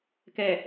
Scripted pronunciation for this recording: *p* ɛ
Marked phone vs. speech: incorrect: k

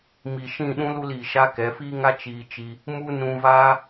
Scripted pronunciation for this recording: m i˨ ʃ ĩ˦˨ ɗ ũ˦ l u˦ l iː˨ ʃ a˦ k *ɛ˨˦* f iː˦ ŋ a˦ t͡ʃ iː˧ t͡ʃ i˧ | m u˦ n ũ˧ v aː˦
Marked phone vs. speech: correct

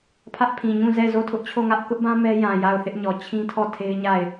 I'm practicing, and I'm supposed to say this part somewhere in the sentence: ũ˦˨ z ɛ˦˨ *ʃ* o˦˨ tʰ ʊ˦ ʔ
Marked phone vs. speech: incorrect: z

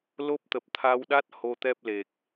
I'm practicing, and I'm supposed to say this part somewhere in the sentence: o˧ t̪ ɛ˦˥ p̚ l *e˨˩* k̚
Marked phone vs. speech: correct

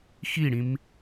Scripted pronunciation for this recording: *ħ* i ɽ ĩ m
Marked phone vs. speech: incorrect: x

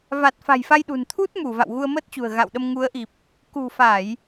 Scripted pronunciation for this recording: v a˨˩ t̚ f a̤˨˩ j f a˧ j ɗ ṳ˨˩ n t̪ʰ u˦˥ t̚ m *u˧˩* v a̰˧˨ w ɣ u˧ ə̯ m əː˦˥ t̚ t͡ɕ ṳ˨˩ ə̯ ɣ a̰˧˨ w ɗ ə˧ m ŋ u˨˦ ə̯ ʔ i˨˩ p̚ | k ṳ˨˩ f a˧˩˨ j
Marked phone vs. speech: correct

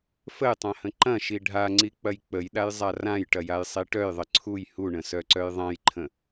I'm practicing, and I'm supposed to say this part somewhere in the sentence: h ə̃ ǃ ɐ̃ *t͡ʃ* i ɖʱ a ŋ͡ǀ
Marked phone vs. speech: incorrect: ʃ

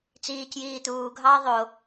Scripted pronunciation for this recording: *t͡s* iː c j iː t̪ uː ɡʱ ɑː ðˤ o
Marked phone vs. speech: correct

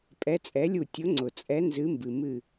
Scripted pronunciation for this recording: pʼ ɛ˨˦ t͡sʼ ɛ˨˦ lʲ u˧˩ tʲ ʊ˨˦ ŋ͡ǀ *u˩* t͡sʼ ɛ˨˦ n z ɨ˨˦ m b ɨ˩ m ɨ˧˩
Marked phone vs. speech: incorrect: ʊ˩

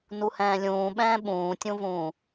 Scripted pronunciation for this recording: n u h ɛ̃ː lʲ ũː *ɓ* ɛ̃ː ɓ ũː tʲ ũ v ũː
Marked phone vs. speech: correct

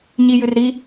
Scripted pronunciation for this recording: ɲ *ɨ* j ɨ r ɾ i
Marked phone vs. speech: incorrect: i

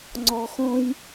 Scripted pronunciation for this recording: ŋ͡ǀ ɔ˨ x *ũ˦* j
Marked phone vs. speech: incorrect: õ˦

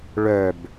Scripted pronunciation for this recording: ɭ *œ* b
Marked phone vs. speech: correct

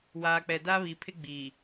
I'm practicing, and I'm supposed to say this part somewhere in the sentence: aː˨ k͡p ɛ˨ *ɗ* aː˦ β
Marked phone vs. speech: incorrect: d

